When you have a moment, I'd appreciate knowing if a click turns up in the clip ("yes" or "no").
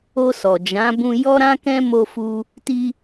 no